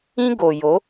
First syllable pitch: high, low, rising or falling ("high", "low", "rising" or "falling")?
high